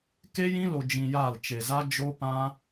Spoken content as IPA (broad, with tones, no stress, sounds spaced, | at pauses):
k e˦ j ĩ˦ l o˧ d͡ʒ ĩ˧ j aː˦˨ l t͡ʃ e˨ z a˦ d͡ʒ o˦ p ã˦